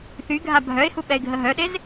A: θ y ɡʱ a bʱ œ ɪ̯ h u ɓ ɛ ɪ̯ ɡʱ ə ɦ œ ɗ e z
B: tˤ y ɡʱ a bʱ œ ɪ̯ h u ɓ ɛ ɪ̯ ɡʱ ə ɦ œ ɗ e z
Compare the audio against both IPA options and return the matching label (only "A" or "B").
A